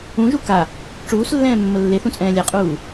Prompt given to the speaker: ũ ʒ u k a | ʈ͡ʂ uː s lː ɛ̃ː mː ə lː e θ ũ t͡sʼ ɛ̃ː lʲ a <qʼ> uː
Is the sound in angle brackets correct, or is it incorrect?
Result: correct